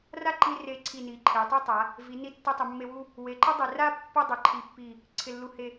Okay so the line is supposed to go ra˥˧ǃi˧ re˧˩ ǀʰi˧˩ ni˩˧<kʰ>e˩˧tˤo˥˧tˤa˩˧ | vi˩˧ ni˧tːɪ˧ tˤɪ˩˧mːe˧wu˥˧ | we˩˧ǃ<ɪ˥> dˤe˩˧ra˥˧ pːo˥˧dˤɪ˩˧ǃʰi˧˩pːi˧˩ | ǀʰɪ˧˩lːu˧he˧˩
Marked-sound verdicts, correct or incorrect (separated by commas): incorrect, correct